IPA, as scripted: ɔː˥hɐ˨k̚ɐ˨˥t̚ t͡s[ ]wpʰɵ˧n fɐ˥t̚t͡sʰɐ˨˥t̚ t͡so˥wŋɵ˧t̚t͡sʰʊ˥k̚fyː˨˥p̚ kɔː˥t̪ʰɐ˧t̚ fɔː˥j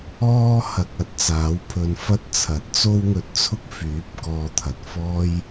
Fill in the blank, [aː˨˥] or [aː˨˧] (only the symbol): aː˨˥